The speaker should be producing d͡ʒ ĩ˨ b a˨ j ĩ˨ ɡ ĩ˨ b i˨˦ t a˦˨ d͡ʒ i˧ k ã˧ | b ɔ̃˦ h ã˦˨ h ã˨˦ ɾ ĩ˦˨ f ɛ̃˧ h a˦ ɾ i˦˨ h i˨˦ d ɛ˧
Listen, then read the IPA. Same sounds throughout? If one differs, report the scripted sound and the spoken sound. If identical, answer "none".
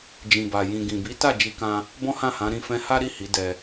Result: none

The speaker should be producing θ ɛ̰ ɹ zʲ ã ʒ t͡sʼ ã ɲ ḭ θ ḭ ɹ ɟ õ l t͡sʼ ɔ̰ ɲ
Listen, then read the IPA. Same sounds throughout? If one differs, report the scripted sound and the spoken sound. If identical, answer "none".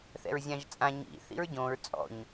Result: l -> ɹ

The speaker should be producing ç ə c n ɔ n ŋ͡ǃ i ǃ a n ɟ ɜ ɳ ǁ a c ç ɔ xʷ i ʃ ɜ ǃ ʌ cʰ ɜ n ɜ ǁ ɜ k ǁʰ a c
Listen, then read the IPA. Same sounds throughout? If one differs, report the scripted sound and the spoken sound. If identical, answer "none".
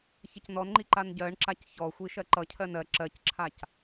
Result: k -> c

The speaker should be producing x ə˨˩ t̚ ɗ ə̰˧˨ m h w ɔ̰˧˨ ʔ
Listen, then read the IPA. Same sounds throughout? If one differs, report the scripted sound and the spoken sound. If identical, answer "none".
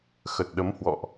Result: ə̰˧˨ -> ə˨˦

